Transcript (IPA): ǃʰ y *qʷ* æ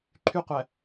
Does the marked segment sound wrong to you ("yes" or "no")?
no